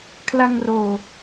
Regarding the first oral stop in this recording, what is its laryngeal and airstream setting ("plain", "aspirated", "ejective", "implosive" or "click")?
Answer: aspirated